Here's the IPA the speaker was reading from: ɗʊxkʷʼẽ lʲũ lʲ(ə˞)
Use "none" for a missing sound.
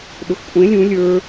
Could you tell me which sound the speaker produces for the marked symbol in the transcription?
ə˞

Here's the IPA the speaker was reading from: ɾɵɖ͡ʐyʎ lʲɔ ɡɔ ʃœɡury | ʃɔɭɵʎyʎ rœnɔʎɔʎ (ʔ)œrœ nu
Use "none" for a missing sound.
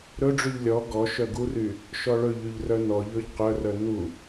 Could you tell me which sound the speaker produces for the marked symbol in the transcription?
q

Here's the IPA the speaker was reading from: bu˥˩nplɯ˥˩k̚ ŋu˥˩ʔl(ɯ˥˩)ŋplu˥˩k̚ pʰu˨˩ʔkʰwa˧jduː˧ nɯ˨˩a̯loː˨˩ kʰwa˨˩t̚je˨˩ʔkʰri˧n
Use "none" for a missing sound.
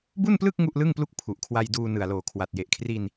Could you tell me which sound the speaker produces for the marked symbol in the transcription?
ɯ˥˩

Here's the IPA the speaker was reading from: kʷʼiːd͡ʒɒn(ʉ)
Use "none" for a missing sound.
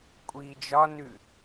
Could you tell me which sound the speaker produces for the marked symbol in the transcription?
ʉ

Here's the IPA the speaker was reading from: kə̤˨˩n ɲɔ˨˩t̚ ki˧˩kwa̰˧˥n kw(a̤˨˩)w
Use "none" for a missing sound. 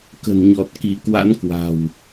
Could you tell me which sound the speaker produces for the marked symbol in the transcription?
a̤˨˩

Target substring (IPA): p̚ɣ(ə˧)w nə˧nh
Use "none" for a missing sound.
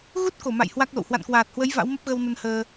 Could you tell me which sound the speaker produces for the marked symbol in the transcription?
ə˧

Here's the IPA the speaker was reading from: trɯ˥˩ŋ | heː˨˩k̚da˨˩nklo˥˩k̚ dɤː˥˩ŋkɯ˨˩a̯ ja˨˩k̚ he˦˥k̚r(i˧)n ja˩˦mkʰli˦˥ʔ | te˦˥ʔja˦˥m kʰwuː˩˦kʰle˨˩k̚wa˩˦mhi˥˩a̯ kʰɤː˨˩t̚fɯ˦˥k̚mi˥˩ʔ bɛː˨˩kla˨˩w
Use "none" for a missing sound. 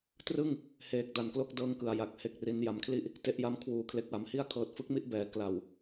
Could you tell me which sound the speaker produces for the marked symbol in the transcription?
i˧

